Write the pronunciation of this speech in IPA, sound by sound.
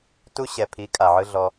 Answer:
t u˦ ɕ ɛ˨ pʰ i˨˦ kʼ a˨ ʕ ɯ˦ ɮ ɔ˧

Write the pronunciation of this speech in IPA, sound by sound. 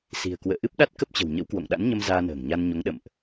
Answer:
s i̤˨˩ ə̯ k w ə̰ː˧˨ ʔ ɨ˦˥ p̚ ɗ a˦˥ t̚ k ə˦˥ p̚ t͡ɕ ə̤˨˩ w ɲ ə̰˧˥ w k w o̰˧˨ ŋ ɗ a̰˧˥ n ɲ ə˧ m z aː˧ n ə̤ː˨˩ ŋ ɲ a˧ n ɲ o˨˦ ŋ ɗ ə̰˧˨ m ʔ

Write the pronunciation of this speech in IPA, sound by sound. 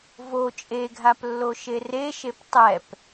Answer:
v o t͡ʃʼ e ɡʱ a p lː o ʃ e r e ʃ e p tˤ ɛ p

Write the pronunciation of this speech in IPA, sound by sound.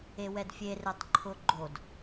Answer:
e w ɛ d fʲ e r e tˤ ǃʰ ʊ ɡ͡ǃ o d

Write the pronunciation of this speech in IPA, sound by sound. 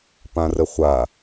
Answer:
p ã r ə χʷ a

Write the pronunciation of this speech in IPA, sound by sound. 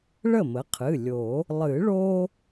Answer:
ɭ ə˥˩ m ə˩˥ qʰ ɨ˩˧˩ lʲ o˨˩˦ | lˠ ɨ˨˩˦ ɭ o˦

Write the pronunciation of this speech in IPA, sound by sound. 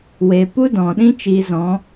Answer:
w e˨ p u˦ d ɔ̃˨ ɗ ĩ˦ t͡ʃ i˧ z ɔ̃˨˦

